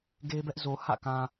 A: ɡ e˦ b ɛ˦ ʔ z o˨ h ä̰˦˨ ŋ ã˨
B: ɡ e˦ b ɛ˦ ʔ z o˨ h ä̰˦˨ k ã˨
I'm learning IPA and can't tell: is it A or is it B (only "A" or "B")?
B